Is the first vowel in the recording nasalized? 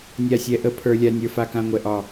no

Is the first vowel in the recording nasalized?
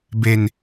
no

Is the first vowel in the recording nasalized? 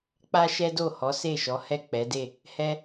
no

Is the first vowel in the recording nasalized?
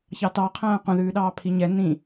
no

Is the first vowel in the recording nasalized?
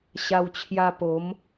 no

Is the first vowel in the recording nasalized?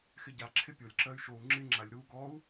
no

